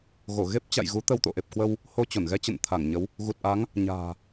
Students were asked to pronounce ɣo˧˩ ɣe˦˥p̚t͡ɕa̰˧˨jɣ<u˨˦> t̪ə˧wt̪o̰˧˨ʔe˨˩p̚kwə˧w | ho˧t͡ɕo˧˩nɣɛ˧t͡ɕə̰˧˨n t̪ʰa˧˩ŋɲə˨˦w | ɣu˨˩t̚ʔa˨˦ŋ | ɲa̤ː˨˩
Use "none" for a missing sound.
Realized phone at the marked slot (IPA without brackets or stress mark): u˨˦